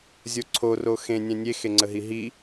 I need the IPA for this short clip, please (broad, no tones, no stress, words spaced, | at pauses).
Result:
zʲoǀʰo roxẽ nʲɛ̃nʲe xeŋ͡ǀəɦiɦi